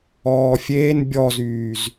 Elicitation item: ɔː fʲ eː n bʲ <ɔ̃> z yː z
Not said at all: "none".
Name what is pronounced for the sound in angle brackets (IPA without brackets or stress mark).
ɔ